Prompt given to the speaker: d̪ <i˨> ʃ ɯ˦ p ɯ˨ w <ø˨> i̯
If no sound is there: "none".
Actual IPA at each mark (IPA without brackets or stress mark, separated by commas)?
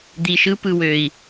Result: i˨, ø˨